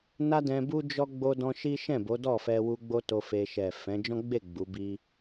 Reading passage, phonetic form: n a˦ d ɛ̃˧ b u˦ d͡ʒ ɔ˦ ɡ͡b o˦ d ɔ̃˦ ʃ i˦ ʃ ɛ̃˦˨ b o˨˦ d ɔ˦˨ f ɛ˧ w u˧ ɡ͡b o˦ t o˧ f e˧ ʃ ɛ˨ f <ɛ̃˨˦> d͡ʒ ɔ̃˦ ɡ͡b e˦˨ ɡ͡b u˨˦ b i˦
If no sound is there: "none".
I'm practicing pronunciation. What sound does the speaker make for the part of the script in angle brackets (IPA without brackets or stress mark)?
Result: ɛ̃˨˦